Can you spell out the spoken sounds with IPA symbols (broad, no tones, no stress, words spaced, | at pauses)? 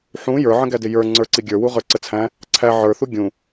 ħũ jə˞ʕə̃ɡædɪ jə˞ ŋ͡ǀə˞ǀiɡʲə˞ wuʁə˞ǀət͡sʰæ̃ | ǀʰæ ʕə˞θu ɡʲũ